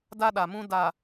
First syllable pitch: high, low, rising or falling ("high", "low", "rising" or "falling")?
high